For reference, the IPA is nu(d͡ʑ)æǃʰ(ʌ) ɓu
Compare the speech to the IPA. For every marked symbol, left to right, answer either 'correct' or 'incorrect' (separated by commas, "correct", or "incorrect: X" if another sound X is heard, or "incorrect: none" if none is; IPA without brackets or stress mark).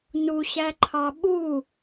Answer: incorrect: ɕ, incorrect: ɑ